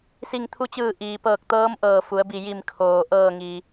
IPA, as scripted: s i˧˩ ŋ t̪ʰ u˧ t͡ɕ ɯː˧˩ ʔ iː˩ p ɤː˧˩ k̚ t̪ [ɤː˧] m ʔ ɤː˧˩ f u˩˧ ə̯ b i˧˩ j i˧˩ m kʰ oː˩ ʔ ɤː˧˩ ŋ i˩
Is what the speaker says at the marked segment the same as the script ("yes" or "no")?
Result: no